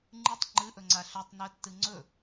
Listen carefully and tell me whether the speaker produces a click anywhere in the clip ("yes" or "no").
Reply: yes